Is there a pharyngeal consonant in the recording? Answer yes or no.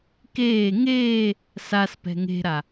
no